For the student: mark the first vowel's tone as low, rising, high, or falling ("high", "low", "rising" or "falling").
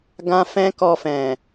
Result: high